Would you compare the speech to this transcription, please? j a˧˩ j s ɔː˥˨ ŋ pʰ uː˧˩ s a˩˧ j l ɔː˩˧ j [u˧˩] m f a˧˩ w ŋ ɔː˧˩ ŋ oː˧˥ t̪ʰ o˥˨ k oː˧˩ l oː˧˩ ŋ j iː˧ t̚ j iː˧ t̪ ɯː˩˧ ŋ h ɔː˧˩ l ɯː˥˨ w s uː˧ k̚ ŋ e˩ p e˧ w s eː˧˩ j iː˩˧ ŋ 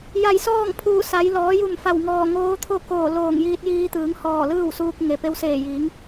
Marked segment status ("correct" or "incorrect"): correct